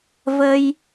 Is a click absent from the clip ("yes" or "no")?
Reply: yes